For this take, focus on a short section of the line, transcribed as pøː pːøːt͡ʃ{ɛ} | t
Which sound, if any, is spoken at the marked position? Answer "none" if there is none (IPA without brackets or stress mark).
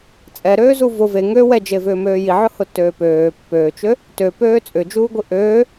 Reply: ø